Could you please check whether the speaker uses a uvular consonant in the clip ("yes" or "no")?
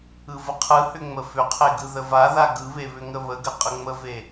yes